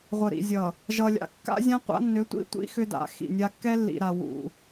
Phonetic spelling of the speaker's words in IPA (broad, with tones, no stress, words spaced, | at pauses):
ʁʷə˨ɾḭ˨zʲʌ˨ | ʒʌ˨lʲa̰˨ kːa̰˦zʲã˦qʷa̰˦nːʏ˨˦ tʷḭ˦tʷḭ˦ xʏ˦da̰˨˦xḭ˨nʲa˦ kːɛ˦lːḭ˨ɾa˨ wṵ˨